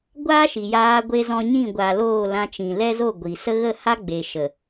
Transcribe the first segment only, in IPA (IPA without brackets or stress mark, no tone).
ɡʷ